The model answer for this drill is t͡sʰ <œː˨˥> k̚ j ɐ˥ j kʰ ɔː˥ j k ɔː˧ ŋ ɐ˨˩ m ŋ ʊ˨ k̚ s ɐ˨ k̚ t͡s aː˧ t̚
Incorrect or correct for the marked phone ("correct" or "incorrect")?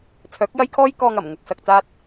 correct